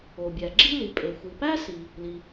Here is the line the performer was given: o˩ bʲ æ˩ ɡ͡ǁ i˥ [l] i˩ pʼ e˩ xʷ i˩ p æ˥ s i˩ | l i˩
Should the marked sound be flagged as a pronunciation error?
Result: no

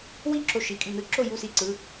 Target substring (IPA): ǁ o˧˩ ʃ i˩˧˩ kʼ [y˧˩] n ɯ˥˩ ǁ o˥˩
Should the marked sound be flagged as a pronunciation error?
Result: no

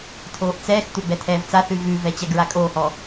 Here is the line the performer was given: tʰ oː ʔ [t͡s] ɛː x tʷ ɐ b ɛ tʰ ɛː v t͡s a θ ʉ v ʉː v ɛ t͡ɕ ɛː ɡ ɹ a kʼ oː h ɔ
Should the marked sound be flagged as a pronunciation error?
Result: no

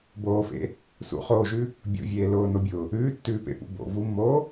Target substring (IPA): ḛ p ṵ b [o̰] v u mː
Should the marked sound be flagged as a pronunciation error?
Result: no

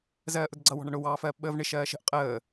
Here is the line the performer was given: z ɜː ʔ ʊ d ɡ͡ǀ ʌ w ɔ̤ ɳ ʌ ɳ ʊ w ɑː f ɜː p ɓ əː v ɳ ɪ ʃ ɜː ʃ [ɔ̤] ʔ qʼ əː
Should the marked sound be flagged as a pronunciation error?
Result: yes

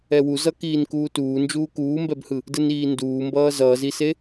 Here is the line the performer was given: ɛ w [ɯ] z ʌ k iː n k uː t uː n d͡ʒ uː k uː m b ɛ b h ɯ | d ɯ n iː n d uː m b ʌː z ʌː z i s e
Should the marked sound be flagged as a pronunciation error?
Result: yes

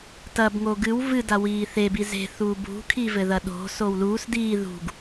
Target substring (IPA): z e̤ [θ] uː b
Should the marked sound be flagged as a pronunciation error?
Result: no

